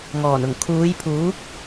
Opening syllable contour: low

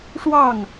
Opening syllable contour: falling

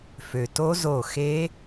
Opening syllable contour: low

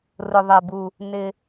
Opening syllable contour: low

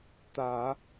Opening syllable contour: low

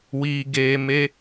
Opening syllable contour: low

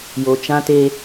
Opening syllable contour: low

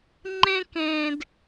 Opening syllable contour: high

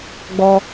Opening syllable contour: high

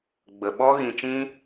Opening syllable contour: low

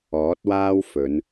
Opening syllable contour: rising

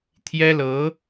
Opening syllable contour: high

